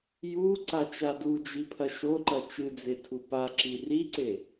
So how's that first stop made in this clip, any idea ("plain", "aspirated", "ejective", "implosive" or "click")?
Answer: click